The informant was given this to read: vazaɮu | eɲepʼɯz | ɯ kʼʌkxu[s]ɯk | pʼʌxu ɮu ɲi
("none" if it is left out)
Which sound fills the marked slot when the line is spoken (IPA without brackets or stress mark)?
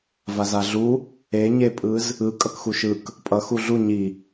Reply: ʃ